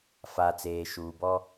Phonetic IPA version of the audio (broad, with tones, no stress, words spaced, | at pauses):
fa˨t͡seː˨ʃuː˨bɔ˦